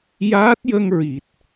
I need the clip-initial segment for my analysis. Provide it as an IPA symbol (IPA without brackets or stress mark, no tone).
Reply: j